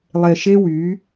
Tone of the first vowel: low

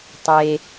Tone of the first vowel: low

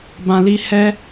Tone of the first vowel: low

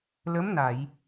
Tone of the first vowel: rising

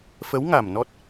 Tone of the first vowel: rising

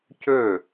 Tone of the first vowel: falling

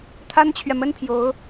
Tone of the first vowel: high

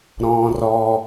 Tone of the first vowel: high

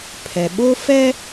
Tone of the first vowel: low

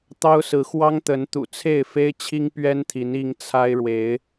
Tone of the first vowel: high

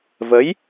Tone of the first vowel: rising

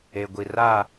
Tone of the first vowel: low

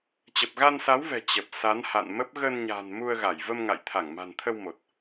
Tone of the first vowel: low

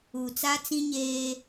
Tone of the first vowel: low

